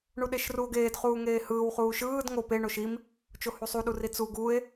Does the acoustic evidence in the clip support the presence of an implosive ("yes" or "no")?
yes